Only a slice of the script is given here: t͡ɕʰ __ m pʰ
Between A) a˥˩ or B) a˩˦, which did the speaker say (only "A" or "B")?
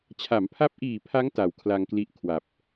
B